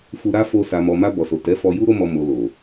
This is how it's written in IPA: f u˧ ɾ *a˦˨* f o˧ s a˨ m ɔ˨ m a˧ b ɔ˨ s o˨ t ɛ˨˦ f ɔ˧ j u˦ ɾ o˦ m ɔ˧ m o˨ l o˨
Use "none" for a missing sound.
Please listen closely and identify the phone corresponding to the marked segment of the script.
a˦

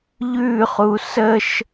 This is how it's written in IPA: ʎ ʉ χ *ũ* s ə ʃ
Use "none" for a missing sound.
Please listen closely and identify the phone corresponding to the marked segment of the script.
u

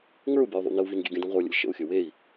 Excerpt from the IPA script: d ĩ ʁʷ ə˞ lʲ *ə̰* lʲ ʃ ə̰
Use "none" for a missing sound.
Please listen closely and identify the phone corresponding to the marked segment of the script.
ə̰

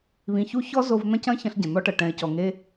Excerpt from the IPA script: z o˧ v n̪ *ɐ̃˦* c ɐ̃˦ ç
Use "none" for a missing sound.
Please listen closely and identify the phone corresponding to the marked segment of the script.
ɐ̃˦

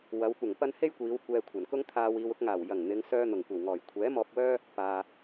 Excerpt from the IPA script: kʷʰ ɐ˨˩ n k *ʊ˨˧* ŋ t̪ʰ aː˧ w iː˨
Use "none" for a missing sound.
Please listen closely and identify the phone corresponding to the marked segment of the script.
ʊ˥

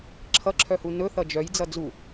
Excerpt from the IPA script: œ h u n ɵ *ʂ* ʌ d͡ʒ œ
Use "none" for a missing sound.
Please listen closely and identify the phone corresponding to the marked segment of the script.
θ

